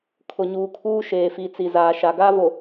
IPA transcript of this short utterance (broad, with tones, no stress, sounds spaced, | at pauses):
kʰ ʊ˨ ɲ uː˨ kʰ uː˦ ʃ eː˨ f i˨ t͡s i˨ z aː˨ ʃ a˨ ɡ aː˦ v o˨